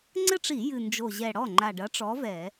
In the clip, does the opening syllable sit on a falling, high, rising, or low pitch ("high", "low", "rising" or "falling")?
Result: falling